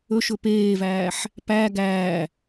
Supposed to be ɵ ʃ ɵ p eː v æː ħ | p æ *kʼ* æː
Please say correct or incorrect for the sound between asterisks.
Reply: incorrect: ɡ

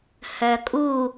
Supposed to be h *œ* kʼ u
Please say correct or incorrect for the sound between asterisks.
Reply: correct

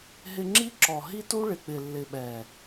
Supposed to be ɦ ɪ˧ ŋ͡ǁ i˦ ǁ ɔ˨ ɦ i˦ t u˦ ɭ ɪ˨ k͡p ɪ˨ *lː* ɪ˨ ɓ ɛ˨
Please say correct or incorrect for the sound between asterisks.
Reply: correct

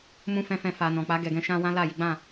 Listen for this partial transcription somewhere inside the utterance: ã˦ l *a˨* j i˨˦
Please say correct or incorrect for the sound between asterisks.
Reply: incorrect: a˦˨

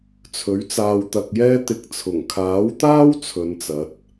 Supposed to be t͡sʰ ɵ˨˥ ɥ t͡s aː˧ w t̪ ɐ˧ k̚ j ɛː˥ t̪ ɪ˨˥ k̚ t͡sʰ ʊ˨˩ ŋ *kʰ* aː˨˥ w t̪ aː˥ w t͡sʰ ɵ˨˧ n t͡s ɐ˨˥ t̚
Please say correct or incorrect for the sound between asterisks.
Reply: correct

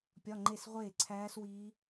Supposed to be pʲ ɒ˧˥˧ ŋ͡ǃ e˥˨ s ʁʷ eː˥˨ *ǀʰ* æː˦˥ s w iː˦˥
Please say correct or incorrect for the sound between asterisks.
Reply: correct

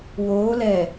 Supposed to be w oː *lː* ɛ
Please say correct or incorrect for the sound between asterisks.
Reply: incorrect: l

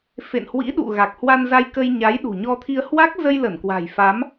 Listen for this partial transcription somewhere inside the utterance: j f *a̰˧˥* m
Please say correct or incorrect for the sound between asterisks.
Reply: incorrect: a˨˦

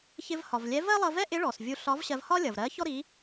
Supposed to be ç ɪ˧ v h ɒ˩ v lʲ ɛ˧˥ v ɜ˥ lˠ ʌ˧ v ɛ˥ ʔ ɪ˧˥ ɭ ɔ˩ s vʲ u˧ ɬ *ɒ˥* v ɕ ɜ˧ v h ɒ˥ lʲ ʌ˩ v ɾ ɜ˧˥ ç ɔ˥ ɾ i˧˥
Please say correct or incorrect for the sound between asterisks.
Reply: incorrect: ɒ˧˥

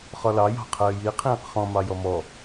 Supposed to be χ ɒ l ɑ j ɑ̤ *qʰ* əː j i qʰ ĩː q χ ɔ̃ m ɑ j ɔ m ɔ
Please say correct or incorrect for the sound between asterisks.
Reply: correct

